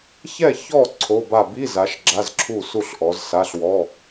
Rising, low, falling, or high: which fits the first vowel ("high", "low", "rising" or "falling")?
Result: falling